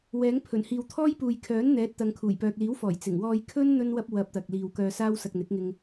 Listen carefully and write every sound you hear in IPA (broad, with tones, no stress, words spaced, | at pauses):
wɛː˨˥ŋpʰɵ˨˩n hiː˨wt̪ʰɔː˥jpuː˨j kʰœː˨˥nn̪ɛː˨˥t̚ t̪ɐ˨˧ŋkʰuː˨˩jpœː˨k̚ liː˨˥wfɔː˨˩j t͡sɪ˨˩ŋwɔː˧j kʰɵ˥n n̪ɵ˥nwɐ˥p̚ wɐ˧p̚ t̪ɐ˨k̚liː˨wkœː˧ saː˥w sɐ˧k̚n̪ɪ˨˥k̚ŋɪ˧ŋ